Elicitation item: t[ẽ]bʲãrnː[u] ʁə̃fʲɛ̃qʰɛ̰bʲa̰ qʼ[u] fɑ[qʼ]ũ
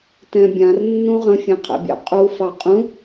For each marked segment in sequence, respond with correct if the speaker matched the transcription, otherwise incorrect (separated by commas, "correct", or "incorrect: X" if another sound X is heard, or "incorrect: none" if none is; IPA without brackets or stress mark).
incorrect: ɛ̃, incorrect: ũ, correct, correct